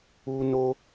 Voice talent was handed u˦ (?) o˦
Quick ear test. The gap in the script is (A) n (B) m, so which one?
A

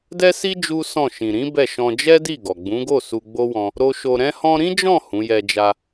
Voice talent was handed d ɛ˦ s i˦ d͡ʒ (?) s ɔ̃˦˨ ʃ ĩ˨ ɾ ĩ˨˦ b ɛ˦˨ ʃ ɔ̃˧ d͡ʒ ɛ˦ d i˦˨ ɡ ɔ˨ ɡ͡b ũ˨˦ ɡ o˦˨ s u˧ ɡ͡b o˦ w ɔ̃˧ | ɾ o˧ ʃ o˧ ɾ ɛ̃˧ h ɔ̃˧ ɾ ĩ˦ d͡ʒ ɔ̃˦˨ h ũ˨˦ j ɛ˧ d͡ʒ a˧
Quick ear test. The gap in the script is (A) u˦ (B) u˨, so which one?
A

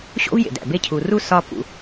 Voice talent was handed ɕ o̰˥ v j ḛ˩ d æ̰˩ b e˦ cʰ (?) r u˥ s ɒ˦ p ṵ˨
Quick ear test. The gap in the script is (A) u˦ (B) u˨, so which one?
B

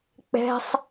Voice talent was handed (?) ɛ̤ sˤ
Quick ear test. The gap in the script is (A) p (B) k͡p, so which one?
B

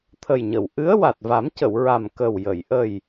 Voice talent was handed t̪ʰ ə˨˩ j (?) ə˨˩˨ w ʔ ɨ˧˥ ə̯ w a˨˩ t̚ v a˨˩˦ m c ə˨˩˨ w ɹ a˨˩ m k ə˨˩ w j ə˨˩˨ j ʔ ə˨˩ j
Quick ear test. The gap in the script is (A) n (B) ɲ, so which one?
B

